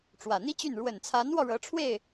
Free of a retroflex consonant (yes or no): no